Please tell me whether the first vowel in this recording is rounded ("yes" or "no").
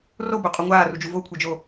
yes